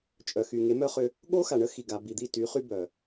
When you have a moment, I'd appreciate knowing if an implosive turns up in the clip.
yes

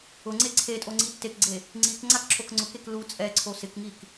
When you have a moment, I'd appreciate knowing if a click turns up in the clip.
yes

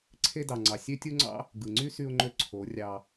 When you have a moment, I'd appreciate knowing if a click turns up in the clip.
yes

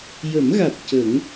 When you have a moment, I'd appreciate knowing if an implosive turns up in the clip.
no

